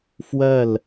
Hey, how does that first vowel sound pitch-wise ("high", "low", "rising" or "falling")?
falling